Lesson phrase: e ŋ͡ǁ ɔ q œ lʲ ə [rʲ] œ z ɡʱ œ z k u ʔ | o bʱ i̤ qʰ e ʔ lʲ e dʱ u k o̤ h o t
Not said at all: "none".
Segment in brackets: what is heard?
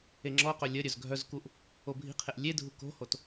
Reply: ɾʲ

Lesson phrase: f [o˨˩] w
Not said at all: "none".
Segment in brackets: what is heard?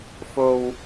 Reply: o˥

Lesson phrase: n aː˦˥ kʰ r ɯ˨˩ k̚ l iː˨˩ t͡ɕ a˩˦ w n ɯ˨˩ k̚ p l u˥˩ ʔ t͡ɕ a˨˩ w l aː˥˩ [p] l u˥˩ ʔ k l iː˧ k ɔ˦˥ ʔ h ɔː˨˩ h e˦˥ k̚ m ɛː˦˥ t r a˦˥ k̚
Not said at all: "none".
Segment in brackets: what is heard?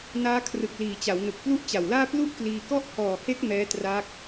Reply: p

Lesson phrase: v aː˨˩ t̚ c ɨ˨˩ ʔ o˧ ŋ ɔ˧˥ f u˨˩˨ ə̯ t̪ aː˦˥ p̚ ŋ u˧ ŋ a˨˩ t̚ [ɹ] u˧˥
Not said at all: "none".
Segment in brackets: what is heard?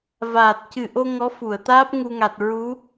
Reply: ɹ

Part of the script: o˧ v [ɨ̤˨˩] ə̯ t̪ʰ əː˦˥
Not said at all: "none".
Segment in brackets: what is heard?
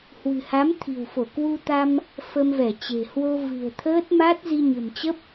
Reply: ɨ̤˨˩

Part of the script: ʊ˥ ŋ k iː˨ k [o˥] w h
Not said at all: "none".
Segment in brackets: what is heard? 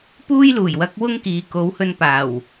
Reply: o˨˥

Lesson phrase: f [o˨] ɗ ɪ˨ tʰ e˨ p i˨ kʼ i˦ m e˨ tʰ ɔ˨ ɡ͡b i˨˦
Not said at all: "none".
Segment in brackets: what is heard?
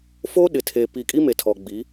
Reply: o˦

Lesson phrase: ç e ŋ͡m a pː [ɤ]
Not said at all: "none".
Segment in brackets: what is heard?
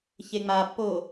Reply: o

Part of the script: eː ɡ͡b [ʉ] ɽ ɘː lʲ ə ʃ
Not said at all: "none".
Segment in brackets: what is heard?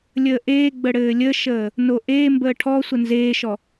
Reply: ə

